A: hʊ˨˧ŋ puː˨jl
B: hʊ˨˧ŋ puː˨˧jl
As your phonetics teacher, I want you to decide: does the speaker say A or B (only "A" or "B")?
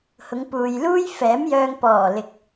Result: A